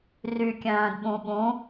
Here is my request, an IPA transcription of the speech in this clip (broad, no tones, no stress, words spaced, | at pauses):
rykʲœ̃ːdɓũɓũ